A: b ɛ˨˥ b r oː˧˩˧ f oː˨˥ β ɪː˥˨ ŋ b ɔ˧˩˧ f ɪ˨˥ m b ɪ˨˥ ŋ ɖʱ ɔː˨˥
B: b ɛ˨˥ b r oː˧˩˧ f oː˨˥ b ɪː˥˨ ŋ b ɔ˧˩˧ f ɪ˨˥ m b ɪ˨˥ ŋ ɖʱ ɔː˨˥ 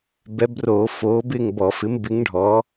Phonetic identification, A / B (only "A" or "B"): B